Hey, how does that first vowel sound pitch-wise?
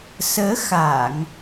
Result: rising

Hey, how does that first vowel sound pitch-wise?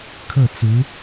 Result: falling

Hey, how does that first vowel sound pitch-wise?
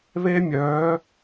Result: high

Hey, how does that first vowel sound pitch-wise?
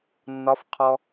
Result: rising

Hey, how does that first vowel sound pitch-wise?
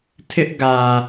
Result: high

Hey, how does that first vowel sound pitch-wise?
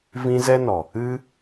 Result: high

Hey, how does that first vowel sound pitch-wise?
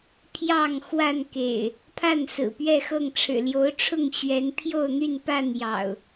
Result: falling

